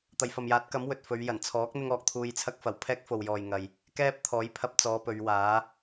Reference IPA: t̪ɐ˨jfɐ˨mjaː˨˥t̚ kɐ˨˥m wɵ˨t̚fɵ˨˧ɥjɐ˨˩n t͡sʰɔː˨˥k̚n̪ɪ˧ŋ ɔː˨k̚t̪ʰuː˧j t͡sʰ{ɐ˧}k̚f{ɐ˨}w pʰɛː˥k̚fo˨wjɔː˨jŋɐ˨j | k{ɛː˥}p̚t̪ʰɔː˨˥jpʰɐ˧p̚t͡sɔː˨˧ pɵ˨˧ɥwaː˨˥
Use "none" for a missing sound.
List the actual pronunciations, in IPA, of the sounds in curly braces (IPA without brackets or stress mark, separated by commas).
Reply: ɐ˧, ɐ˨˩, ɛː˥